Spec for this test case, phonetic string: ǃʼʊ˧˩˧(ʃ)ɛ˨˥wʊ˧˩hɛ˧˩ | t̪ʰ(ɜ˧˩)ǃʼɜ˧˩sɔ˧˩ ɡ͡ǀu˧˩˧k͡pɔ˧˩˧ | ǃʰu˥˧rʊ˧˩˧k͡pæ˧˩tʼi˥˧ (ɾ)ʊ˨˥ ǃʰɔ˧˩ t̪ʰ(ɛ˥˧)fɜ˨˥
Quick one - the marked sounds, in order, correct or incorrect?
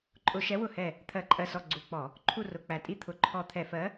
correct, incorrect, incorrect, incorrect

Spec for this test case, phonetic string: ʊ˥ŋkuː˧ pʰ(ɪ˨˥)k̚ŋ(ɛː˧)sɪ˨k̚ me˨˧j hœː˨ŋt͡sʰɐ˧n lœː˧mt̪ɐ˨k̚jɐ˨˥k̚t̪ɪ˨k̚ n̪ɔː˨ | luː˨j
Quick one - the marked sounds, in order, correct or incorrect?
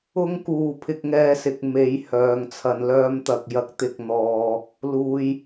incorrect, correct

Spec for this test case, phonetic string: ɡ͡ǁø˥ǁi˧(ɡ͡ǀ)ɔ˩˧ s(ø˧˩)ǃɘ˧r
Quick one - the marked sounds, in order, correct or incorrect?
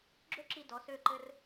incorrect, correct

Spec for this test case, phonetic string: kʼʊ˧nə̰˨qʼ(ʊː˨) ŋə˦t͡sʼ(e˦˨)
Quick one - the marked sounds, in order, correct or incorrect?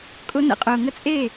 correct, correct

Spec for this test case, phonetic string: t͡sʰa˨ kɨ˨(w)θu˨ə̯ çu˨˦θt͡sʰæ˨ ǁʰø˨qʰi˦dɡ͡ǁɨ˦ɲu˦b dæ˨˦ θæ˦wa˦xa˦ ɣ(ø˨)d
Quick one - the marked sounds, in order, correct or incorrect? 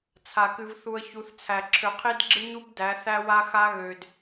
incorrect, correct

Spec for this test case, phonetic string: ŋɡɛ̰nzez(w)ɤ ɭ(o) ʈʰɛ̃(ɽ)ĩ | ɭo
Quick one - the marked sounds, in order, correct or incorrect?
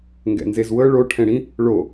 correct, correct, correct

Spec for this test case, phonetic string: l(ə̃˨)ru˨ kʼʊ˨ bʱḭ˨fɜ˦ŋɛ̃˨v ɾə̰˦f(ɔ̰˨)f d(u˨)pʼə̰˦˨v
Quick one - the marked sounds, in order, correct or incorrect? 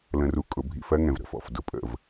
correct, correct, incorrect

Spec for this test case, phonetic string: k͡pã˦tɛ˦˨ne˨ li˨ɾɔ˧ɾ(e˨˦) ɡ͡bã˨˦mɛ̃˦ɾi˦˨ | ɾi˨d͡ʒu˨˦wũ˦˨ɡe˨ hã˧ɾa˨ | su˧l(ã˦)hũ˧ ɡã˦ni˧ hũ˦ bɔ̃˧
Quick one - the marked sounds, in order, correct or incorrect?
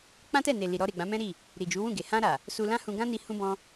incorrect, correct

